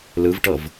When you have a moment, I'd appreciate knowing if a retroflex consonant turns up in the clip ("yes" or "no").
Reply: yes